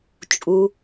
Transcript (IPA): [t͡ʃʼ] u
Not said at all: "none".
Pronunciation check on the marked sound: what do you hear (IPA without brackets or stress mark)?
t͡ʃʼ